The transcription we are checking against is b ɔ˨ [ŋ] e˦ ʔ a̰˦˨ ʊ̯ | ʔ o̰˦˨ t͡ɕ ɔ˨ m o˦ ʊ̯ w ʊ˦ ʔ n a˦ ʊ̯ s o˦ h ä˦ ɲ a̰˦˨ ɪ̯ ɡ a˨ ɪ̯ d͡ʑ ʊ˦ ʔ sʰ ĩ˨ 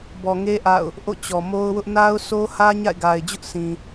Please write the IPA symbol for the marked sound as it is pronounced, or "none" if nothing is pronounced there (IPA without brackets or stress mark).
ŋ